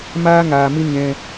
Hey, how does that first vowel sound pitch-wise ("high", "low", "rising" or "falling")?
high